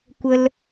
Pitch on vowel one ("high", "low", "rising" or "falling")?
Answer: high